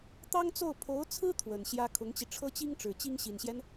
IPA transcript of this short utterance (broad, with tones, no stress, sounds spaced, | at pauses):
t̪ ɑ˥ ŋ t͡s o˥˩ ʊ̯ pʰ o˧˥ ʊ̯ t͡sʰ ɹ̩˥ t̪ʰ w ə˨˩ n ɕ j ä˥ kʰ ʊ˧˥ ŋ t͡ɕ i˧ ʈ͡ʂʰ ɤ˥ t͡ɕ i˥ ŋ ʈ͡ʂ ɻ̩˨˩ t͡ɕ i˥ ŋ ɕ i˨˩ n ɕ j ɛ˦ n